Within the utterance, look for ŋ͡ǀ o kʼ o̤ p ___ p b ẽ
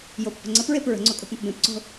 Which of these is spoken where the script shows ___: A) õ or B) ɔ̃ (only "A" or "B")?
A